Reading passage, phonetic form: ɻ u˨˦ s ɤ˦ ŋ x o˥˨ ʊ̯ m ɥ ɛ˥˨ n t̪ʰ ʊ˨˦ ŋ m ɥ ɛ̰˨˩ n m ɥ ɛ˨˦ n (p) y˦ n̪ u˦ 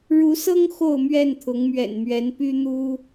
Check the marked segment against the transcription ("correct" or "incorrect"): correct